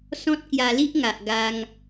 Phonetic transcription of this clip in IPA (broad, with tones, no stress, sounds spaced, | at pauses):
s ɔ̃˦ t̚ k j a˧ l i˦ ʔ ŋ a˨ ʔ ɡ a˧ ŋ